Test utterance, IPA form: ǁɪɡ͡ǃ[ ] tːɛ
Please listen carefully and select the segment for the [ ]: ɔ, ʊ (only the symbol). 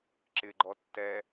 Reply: ɔ